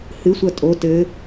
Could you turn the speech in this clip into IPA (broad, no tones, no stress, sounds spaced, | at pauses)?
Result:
h ɨ sʷ ɐ tʼ o t ɘ